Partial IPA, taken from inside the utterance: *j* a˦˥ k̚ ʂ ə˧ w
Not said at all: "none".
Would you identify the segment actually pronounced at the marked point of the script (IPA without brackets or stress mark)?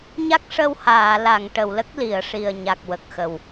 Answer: ɲ